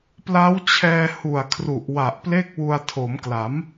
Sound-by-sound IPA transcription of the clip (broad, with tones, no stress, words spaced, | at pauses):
pla˦˥wt͡ɕʰɛː˧ hu˨˩a̯ kʰru˨˩ʔwa˨˩ʔple˥˩k̚wu˧a̯ tʰo˩˦mkla˩˦m